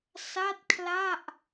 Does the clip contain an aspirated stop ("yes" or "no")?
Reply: yes